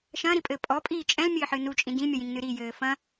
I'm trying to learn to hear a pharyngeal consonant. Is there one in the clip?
yes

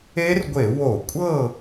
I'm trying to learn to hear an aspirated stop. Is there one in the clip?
no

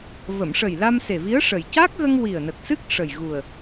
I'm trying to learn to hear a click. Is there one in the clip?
no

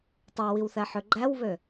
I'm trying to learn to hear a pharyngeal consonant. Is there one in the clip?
yes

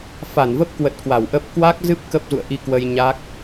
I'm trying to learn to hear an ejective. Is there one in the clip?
no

